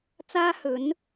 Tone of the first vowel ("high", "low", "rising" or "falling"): high